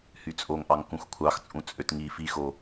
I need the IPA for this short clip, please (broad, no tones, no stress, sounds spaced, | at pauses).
h y t͡sʼ o ŋ ʔ ɑ ŋ k ũ x kʷʰ ɑ x t͡sʼ ũ t͡sʼ ø t ŋ i f i x o